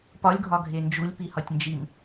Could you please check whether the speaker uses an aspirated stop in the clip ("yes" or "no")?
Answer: no